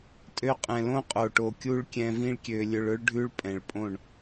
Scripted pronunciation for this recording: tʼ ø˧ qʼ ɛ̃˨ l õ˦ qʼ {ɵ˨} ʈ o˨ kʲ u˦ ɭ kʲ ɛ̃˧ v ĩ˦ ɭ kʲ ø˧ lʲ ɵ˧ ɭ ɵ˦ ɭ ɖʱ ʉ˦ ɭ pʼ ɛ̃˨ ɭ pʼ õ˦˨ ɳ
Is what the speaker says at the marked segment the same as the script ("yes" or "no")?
no